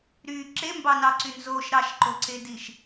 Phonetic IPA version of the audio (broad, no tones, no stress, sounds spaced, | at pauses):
ɾ y ǁ e m b ɑ n ɑ ǀ y n z o ʃ ɾ ɑ ʃ ǃ o ǀ e d i ʃ